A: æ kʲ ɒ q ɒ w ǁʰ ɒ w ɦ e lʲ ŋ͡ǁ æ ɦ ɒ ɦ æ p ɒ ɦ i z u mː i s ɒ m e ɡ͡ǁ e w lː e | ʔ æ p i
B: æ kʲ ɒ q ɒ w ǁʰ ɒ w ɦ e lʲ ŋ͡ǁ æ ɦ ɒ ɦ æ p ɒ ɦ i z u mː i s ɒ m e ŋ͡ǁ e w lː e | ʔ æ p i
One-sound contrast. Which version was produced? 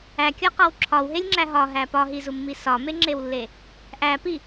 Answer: B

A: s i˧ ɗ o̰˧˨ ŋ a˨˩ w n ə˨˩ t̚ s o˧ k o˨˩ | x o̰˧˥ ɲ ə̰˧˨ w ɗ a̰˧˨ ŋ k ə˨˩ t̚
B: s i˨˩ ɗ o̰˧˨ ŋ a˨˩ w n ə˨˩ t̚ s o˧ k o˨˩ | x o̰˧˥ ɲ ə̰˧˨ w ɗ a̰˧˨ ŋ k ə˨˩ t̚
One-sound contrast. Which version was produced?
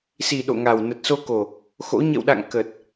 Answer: B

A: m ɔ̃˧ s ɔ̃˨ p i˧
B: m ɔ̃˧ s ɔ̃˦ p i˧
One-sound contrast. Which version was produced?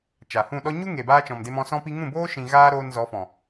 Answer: B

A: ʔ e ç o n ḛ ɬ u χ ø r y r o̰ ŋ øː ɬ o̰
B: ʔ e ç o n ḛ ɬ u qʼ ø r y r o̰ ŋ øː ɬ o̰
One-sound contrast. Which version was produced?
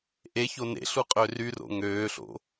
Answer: B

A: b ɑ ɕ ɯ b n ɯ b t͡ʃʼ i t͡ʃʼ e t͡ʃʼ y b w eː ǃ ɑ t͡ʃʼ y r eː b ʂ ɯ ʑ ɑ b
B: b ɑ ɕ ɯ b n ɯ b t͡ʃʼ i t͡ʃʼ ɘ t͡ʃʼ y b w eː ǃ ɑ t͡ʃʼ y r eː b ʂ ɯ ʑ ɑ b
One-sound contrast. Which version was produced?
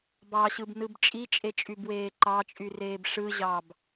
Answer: A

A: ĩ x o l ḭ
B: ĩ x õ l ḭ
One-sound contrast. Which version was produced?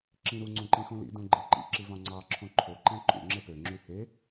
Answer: B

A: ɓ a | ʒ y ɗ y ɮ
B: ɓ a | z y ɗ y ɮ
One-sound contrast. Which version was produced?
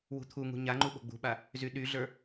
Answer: B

